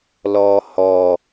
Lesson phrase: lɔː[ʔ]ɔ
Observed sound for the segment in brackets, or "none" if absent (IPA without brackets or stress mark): h